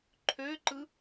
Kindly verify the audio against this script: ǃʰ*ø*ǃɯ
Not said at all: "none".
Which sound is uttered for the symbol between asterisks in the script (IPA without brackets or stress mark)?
ø